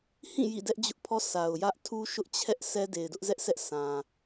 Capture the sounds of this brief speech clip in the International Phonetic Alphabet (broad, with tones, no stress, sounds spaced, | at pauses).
h ĩ˦˨ j ḭ˦˨ d ɛ˦ ʔ d͡ʑ ʊ˦ ʔ pʰ ɔ˦ sʰ a˨ ʊ̯ j ä˦ ʔ tʰ u˦ ʃ ʊ˦ ʔ t͡ɕʰ ɛ˦ ʔ sʰ ɛ˦ d e˨ ɪ̯ d ʊ˦ ʔ z ɛ˦ ʔ s ɛ˦ ʔ sʰ ã˨